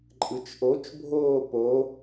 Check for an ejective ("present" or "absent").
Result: present